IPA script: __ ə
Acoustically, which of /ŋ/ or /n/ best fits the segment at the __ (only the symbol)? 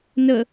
n